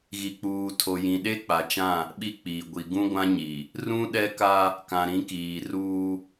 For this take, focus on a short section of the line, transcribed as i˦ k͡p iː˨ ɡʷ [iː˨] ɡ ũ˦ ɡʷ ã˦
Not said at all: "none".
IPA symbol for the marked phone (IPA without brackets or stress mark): i˨